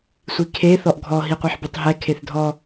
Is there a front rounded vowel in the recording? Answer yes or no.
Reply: no